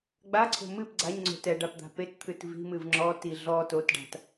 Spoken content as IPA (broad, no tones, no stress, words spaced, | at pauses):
ɡ͡baǀʰo̤ mɨp ɡ͡ǀaɲŋ͡ǀo̤ tɛɖap d̪a̤pett̪ʰɨt vi̤mɨv ŋ͡ǁɔ ti ɮɔ totɖa̤t